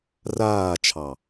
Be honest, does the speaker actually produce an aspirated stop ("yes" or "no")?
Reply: yes